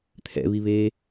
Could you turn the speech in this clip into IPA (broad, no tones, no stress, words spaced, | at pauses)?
t̪ʰɛ̰βiβeː